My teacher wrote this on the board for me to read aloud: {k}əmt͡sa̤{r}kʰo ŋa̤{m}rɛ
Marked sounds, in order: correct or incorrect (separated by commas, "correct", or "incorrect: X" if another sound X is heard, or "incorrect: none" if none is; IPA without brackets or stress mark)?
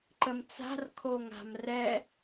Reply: incorrect: ǃ, correct, correct